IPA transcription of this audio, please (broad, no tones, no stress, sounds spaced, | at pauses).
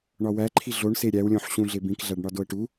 ɳ ɒ w æ ǃʰ i ɮ o ɳ s e ɾʲ æ w lʲ õ ħ ɕ ũ ɮ e b ĩ k ɮ æ ɖ ɳ ɒ d o ə̯ ʈ u